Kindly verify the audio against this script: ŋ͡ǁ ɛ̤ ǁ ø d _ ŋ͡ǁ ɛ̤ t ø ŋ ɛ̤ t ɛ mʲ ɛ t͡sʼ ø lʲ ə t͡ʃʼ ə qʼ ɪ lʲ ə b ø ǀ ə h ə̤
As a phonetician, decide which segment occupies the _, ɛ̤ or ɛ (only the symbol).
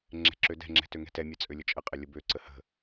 ɛ̤